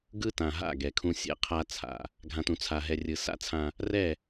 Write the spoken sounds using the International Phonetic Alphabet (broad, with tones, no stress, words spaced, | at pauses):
ɡɯ˦tã˨ɦa̰˦˨ ɡɛ˨kʰũ˦ sʲɛ̰˨ qʰa˦t͡sʰa̰˨ | ɡʱã˨tũ˨t͡sʰa˨ɦɛ˨ rʲɯ˨sa̰˦t͡sʰã˦ | rɛ˦˨